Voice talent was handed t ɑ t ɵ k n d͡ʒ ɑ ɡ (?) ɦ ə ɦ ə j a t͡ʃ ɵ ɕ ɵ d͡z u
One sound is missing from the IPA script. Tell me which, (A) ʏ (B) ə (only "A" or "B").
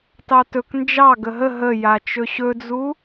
B